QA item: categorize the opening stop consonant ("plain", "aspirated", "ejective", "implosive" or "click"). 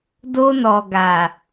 plain